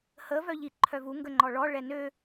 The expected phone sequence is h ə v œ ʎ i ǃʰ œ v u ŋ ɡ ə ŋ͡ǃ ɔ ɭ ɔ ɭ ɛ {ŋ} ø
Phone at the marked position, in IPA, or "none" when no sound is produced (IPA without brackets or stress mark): n